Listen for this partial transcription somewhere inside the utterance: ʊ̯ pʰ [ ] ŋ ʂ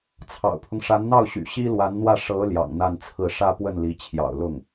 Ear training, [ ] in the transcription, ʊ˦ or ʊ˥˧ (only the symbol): ʊ˦